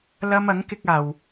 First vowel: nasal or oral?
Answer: oral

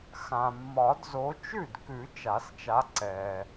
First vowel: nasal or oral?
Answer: nasal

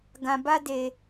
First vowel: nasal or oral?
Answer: nasal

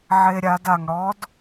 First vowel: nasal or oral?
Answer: oral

